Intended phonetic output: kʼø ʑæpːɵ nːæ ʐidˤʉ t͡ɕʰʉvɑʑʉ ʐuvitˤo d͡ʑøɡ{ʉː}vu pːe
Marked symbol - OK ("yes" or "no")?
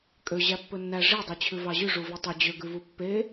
no